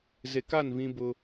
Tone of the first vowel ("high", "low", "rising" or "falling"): low